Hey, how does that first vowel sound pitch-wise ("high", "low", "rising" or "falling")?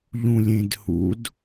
low